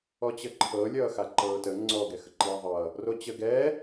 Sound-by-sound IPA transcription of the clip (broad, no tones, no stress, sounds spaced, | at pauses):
ɔ t͡ɕ ə ǃʰ ɤ lʲ ʌː x a ǃ ɤː t ə ŋ͡ǀ ɔ ɡ ɛ x ə ǃ iː ðˤ ʌː | r o t͡ɕ ə ɡ ɛː